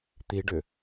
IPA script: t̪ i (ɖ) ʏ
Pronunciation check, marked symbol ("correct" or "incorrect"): correct